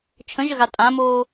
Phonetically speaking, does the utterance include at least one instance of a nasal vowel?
yes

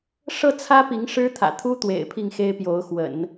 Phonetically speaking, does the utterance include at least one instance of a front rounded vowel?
no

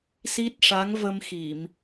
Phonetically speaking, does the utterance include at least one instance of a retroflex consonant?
yes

